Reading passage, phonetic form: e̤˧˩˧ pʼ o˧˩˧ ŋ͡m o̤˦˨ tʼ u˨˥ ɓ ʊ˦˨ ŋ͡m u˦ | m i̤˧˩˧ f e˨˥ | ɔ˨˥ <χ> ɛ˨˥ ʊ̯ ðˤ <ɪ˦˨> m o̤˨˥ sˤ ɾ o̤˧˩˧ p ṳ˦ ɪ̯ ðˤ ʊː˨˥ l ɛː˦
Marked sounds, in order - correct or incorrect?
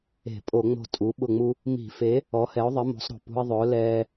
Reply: incorrect: h, incorrect: ɪ˨˥

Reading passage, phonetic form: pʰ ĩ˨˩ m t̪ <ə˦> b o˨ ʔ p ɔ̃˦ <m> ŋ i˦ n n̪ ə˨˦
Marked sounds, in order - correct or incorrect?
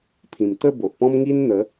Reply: incorrect: ə˥˧, correct

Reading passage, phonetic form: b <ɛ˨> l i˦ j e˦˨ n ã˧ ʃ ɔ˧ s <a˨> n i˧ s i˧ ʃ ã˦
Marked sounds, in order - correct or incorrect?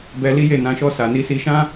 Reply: incorrect: ɛ˧, correct

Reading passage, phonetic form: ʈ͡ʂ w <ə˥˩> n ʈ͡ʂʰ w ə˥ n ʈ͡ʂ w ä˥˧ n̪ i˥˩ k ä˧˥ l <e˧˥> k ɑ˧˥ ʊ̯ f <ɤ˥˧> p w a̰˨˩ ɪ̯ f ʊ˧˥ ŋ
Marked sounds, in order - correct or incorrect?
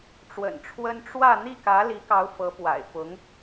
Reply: incorrect: ə̰˨˩, incorrect: i˧˥, incorrect: ɤ˧˥

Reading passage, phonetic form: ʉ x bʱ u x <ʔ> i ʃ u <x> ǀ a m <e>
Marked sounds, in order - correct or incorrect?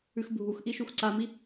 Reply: correct, correct, incorrect: i

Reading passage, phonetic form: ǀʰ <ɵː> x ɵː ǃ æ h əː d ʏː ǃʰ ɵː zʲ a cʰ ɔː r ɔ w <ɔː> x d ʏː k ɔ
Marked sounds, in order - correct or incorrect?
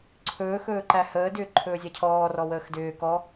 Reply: correct, incorrect: əː

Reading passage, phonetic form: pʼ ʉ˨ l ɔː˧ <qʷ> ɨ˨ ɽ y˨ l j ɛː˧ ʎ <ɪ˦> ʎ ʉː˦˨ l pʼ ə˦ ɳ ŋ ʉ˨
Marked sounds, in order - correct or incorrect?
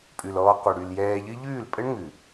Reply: correct, incorrect: ɨ˦

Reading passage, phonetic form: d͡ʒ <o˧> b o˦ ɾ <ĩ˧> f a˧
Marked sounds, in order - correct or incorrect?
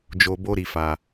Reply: correct, incorrect: i˧

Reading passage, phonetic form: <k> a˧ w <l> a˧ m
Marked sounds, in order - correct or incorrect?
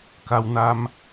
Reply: correct, incorrect: n

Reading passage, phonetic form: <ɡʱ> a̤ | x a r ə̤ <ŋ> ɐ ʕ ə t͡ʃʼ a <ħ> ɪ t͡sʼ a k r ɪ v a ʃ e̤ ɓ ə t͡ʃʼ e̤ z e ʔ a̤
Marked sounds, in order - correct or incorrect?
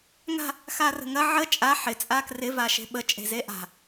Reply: incorrect: ŋ, correct, correct

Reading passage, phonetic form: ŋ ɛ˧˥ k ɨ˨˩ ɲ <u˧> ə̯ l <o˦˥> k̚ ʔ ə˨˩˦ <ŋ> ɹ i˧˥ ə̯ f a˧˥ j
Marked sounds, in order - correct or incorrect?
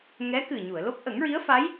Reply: incorrect: u˨˩˨, correct, correct

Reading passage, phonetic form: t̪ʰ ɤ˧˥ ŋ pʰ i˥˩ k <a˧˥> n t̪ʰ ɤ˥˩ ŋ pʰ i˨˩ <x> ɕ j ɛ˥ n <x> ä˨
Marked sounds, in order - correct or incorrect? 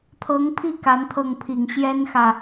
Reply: correct, incorrect: ŋ, correct

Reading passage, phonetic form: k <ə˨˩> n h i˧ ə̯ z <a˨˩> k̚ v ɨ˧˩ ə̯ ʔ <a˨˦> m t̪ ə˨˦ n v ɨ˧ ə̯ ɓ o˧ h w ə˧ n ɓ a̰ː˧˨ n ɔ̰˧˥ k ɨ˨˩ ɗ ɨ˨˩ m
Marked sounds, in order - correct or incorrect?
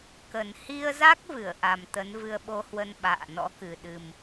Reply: correct, incorrect: a˦˥, incorrect: a˨˩

